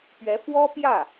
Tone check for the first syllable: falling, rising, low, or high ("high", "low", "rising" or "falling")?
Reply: rising